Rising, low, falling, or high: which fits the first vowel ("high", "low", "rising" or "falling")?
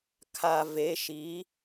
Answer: low